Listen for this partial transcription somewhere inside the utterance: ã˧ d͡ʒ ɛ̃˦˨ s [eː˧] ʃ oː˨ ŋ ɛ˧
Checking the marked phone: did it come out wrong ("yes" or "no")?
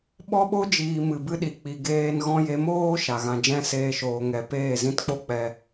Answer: no